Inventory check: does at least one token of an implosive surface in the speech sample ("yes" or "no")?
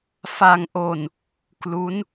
no